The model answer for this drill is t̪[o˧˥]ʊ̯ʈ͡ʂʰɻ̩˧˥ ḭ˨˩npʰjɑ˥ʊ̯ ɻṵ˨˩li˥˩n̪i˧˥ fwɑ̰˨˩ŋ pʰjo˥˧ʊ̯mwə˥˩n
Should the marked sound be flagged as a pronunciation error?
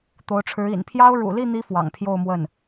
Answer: no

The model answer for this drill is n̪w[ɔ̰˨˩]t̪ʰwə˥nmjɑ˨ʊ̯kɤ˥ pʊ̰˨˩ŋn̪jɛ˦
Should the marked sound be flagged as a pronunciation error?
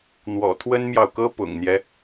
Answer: no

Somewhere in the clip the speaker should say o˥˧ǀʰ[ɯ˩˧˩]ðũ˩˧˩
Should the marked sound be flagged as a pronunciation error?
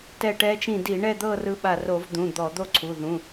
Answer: yes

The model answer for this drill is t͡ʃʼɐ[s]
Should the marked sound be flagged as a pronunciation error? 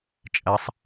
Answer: yes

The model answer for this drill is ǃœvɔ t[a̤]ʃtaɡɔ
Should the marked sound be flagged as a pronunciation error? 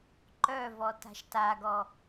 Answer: no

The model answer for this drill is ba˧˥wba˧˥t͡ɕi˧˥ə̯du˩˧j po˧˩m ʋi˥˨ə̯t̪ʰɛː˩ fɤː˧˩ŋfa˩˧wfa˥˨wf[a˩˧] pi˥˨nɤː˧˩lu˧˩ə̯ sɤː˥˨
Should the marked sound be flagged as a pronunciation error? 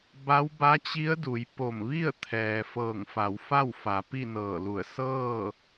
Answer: no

